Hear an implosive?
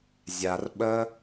yes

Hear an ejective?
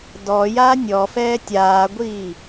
no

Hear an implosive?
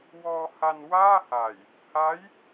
no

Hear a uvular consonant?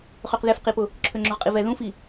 yes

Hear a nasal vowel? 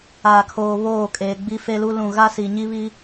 yes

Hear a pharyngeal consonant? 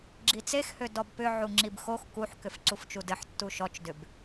yes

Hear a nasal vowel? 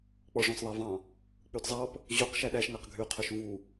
yes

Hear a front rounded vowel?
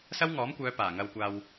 yes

